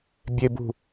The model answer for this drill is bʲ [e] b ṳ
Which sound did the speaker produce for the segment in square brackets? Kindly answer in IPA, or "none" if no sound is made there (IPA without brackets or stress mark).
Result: e